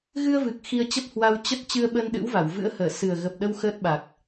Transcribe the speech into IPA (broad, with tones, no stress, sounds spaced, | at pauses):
ɣ ɨ˧ ə̯ v ɨ˨˩ k̚ x i˧ ə̯ t͡ɕ ə˦˥ p̚ h w a˧ w t͡ɕ ə˦˥ t̚ t͡ɕ ɨ˧ ə̯ ɓ ə˧ n ɗ ɨ̰˧˥ w v a˧˩ w v ɨ̰˧˥ ə̯ h əː˧˩ s ɨ˨˩ ə̯ ɣ ə˨˩ p̚ ɗ ə˧ w x əː˦˥ t̚ ɓ a˨˩ k̚